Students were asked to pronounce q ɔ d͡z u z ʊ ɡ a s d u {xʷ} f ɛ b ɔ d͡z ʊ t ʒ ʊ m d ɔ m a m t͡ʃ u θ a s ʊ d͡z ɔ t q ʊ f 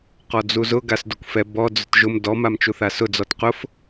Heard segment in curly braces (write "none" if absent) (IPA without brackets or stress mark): kʷ